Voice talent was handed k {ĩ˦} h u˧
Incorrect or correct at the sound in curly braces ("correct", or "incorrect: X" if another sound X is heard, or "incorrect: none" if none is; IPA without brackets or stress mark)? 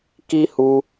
incorrect: i˦